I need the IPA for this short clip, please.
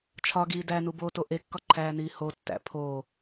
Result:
t͡ʃʰ ɒ ɡ iː d æ n u b oː t o ʔ e kː ɒ ǃʰ æː n iː h o tː æ̰ pʰ o

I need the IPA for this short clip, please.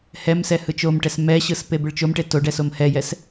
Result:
h ɛ m s ɛ h ɯ t͡ʃ o m ʈ ɛ s m ɛ ɕ ɯ s p e b ɯ ɭ t͡ʃ o m ʈ e t o ɖ ɛ s o m h ɛ j ɛ s

